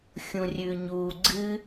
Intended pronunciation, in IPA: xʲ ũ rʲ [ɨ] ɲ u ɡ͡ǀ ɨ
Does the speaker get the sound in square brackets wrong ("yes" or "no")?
yes